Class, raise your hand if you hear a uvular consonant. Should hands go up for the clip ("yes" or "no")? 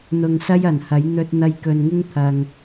no